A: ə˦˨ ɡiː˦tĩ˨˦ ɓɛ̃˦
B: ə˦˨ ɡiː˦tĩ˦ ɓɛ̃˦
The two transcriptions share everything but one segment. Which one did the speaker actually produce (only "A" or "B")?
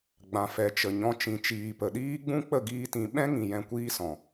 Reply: A